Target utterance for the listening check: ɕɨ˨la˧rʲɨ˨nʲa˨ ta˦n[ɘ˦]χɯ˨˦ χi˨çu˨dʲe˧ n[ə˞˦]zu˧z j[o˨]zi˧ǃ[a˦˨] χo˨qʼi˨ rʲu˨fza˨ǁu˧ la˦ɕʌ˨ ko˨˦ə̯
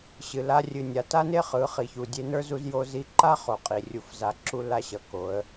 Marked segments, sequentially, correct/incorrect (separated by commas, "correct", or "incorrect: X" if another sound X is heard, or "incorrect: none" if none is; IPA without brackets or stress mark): incorrect: e˦, correct, incorrect: o˧, incorrect: a˦